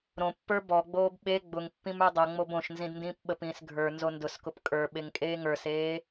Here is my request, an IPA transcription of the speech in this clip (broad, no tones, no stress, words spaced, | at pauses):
ɾõpːə˞ bɔɡ͡boːb ɓe ɡ͡bʊŋpːĩm ə˞dˤʌŋ͡mob õʃnzĩd ndĩːpɓəpĩːs ɡʱə˞ nzondʊskʊp kʼə˞ ɓeŋkʼeːŋə˞seː